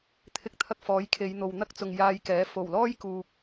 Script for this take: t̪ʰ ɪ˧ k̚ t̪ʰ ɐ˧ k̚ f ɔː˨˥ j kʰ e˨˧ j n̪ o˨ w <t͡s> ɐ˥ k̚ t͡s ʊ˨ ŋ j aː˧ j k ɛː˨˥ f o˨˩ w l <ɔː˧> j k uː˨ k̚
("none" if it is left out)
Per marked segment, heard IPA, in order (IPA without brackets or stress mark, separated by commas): n̪, ɔː˥